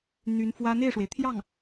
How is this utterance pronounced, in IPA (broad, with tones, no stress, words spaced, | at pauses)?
n̪y˧˥nfwä˥ n̪e˥˩ɪ̯ʂwe˩ɪ̯t̪ʰjɑ˥˩ŋ